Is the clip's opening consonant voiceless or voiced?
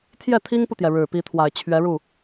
voiceless